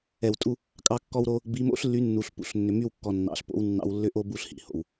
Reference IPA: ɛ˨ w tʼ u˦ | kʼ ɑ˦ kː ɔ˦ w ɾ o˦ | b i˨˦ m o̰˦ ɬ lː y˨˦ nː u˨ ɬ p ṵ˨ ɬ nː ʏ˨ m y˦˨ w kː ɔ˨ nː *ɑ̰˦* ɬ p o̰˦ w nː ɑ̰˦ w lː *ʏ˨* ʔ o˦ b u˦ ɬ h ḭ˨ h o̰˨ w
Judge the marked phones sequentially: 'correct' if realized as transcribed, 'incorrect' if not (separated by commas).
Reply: incorrect, incorrect